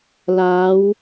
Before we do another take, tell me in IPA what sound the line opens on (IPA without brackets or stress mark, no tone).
l